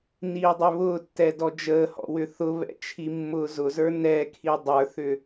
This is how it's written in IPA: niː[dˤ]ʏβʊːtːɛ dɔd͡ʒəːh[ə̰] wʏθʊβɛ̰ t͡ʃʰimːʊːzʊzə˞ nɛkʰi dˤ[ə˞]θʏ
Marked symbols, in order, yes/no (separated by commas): yes, no, yes